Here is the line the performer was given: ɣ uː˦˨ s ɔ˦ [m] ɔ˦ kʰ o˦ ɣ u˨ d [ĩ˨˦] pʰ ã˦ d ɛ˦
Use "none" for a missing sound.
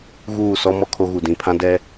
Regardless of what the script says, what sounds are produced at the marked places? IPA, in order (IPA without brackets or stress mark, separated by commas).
m, ĩ˨